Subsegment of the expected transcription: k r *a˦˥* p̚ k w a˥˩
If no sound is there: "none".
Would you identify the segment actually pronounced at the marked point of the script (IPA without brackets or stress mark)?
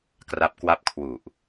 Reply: a˦˥